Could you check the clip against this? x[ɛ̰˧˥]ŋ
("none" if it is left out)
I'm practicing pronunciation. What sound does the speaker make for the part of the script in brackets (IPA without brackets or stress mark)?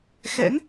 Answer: ɛ̰˧˥